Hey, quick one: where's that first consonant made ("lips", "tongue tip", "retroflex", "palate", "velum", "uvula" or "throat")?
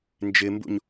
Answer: tongue tip